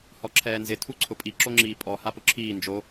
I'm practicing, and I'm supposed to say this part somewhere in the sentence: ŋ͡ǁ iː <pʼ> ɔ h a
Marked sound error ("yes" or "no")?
no